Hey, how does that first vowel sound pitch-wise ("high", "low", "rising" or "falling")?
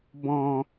low